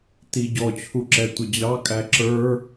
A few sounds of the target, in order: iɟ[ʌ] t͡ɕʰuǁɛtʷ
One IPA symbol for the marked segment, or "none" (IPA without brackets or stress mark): ɔ